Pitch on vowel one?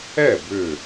falling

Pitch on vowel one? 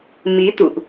rising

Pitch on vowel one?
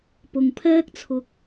low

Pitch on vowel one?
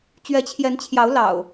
rising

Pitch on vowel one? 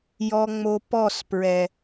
low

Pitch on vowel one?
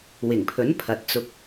low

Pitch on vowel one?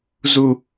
low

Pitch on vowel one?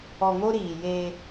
low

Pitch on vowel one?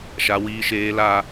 low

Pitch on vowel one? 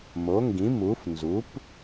rising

